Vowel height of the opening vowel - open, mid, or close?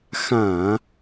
open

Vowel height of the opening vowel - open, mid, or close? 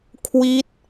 close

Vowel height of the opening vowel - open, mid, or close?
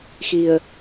close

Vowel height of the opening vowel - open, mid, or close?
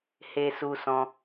mid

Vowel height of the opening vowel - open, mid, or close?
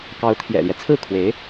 open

